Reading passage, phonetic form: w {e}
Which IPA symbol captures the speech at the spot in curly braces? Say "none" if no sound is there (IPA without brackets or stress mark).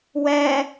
ɛ